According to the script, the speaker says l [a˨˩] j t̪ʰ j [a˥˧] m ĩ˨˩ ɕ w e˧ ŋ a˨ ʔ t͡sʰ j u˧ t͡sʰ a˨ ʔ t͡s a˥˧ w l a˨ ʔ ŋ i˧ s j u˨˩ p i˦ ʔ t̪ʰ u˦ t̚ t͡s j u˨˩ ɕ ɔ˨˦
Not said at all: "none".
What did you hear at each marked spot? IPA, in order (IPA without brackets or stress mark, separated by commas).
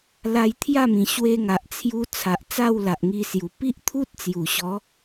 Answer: a˧, a˥˧